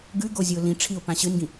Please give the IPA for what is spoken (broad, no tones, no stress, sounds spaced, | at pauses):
ɡ ʉ ɡ o zʲ ɨ ʊ̯ l ĩ ʈ͡ʂʰ i ʊ̯ p ã ɕ ɨ n ɡ ĩ